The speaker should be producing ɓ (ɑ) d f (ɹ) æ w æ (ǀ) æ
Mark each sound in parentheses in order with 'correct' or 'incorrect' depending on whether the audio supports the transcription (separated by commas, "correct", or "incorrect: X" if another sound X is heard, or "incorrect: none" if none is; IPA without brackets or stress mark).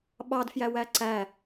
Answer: correct, incorrect: j, correct